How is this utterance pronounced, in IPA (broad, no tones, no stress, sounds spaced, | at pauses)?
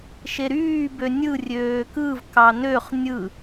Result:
ʃ e ɾ yː b ø nʲ ɯ rʲ øː k ɯ v k ɑ n ø χ nʲ ɯ